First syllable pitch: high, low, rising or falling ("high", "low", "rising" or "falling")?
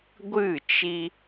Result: falling